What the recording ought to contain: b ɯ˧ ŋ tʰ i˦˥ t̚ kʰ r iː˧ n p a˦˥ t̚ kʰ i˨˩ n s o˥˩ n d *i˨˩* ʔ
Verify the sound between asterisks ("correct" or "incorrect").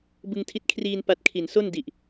correct